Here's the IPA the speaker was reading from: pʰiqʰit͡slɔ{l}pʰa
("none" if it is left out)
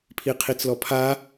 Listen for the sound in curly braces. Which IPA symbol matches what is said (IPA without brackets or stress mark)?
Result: none